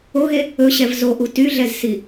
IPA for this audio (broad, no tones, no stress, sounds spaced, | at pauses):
o ɣ e | ɵ ɕ ɛ v z o ʔ u t y ɮ ɛ z s i